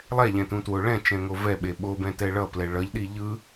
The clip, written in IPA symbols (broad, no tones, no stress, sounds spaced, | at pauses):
lˠ ɛ ʎ ɛ̃ t ũ t w o ɭ ɛ̃ t͡ʃ ɛ̃ ŋ o v ɛ ɓ e ɓ o b ɛ̃ t ɛ ɭ ʌ p l ɛ ɭ ʌ ʎ ɗ i ʎ ɯ